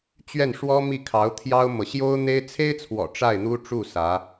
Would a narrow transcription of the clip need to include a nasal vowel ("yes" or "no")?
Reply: no